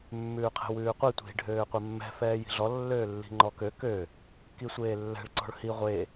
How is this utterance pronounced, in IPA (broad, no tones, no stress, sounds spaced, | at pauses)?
mː ʉː qʰ ɛ̤ w ʉː qʷ i tʷ i̤ ɖʱ øː qʷ ɛ mː ɛ̤ f ɛː j i̤ ɮ ɔ lː øː lː i̤ ŋ͡ǃ ɔ k ø k ø | k i sʷ eː lː ɛ̤ ɭ ǀ ɔ̤ ɭ h i ʁʷ e